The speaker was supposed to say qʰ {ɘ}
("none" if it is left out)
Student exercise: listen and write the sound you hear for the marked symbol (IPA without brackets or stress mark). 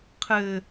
ɘ